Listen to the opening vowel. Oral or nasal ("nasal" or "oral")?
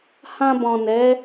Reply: nasal